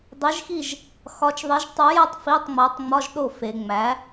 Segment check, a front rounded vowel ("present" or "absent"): absent